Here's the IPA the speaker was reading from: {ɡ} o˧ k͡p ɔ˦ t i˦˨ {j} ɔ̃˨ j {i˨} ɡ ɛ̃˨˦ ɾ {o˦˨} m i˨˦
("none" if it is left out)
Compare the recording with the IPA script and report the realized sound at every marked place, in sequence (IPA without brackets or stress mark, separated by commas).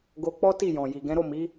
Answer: ɡ, j, i˨, o˦˨